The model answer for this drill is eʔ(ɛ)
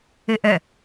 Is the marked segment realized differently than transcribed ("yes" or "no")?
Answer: no